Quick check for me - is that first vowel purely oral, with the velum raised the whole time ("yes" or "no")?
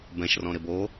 no